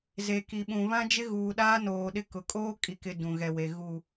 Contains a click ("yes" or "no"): no